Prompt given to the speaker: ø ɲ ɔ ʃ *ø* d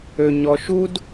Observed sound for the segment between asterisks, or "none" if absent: u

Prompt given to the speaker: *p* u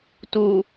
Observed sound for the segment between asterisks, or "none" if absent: t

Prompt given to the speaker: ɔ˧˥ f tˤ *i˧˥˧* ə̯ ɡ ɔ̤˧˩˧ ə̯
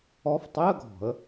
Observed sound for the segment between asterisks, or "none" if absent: i˧˥˧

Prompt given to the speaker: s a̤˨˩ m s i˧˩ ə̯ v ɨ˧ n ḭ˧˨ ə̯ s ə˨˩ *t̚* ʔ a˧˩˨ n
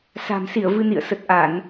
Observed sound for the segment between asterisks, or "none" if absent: t̚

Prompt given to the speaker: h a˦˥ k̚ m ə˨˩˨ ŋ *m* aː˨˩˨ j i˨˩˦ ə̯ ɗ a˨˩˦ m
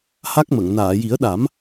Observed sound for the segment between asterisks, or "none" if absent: n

